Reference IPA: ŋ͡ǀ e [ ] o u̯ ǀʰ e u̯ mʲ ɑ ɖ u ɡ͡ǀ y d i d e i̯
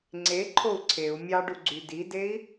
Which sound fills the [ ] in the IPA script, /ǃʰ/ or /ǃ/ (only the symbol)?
ǃʰ